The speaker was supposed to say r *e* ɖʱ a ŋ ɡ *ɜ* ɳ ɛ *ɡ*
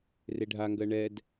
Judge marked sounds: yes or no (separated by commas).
yes, yes, no